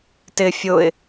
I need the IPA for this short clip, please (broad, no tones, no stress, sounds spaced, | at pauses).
t ɪ fʲ ʊ ɪ̯